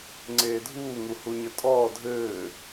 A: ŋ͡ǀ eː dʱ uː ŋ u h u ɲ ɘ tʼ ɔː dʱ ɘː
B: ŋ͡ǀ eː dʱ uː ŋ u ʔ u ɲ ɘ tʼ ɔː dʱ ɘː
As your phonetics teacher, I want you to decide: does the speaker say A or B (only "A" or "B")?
A